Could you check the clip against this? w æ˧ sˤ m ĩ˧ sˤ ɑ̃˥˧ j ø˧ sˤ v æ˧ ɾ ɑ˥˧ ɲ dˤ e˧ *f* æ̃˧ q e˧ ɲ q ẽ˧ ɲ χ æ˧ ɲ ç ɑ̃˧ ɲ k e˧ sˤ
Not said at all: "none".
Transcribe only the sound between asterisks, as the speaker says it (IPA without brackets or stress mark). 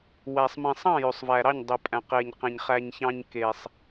pʼ